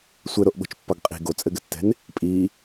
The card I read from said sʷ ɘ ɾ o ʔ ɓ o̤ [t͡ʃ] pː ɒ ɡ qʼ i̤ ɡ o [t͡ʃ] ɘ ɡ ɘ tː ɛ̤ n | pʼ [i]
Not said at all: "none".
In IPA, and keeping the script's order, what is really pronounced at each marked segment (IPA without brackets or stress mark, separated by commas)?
t͡ʃ, t͡sʼ, i